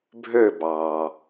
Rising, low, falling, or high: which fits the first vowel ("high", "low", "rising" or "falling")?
falling